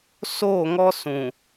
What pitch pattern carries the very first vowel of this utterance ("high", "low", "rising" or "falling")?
falling